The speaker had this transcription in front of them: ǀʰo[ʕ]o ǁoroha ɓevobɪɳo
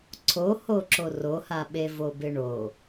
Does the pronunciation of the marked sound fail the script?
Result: yes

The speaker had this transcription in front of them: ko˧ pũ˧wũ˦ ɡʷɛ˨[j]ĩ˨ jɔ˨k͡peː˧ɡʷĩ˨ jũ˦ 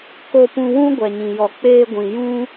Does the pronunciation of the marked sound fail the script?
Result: yes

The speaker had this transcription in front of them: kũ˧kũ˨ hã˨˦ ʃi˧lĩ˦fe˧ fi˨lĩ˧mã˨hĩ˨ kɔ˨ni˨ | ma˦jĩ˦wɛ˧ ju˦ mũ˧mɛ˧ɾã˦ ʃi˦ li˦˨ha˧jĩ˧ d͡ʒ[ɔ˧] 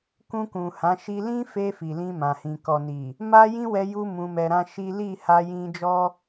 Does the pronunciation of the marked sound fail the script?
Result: yes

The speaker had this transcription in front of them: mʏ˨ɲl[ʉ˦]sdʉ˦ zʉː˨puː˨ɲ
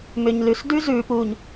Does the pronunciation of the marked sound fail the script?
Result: yes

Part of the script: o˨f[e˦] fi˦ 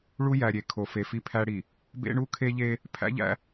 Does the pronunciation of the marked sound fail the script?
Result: yes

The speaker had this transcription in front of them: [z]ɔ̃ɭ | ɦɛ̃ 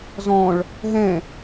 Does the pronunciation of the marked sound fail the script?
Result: no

